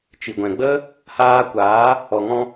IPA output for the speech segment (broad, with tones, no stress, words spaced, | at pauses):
t͡ʃi˨ɡʷɛ̃˨ɡ͡bə˦ | haː˧kʷaː˨˦ | ɔ˨ŋɔ̃˧